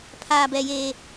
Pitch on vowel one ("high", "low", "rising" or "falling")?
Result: high